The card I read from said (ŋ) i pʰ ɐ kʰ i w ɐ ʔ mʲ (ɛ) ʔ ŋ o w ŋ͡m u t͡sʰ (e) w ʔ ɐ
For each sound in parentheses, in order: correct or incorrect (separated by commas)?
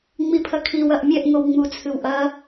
incorrect, correct, incorrect